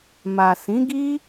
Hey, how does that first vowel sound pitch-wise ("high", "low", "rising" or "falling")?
low